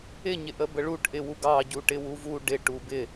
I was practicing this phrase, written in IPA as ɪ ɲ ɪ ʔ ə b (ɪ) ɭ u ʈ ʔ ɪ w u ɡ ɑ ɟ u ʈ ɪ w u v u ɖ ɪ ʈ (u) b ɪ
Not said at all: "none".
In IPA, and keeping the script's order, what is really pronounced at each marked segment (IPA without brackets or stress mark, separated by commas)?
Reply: ə, u